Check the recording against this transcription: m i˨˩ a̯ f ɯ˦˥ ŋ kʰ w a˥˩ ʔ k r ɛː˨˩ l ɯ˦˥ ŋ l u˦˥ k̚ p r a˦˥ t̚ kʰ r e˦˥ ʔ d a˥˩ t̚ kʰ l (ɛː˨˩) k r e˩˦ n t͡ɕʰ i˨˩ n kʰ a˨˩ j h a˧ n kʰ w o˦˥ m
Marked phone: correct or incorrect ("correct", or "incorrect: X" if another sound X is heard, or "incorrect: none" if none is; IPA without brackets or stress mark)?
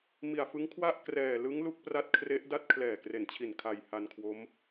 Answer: correct